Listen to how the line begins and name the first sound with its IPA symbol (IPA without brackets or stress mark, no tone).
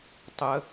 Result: tˤ